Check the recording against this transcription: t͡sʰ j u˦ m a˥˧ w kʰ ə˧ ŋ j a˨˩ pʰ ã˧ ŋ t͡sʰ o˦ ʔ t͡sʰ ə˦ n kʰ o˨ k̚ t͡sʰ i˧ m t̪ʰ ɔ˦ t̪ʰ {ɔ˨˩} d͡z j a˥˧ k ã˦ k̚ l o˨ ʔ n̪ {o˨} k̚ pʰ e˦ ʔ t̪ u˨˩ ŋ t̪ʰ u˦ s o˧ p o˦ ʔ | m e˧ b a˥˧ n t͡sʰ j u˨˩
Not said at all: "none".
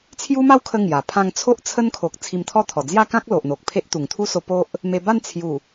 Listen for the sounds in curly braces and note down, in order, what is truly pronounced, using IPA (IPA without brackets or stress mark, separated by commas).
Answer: ɔ˨˩, o˨